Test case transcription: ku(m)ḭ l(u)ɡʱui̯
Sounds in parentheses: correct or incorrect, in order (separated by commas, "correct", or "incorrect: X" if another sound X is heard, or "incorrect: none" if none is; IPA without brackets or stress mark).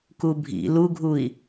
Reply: incorrect: bʱ, correct